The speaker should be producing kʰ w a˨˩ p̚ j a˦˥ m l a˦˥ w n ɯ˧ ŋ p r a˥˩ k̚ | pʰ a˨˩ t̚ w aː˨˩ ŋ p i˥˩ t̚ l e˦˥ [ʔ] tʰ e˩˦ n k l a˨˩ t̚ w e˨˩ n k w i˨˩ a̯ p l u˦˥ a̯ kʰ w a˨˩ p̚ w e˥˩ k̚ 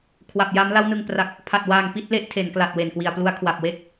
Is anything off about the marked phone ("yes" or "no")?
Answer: no